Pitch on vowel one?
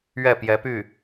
falling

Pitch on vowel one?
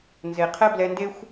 low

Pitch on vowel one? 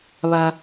low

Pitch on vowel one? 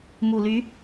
low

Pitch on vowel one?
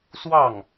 falling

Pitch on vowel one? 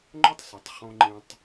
high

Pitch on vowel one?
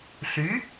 rising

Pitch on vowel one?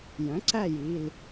rising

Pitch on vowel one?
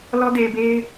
high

